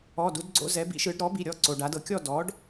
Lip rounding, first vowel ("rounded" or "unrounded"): rounded